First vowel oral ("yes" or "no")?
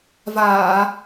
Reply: yes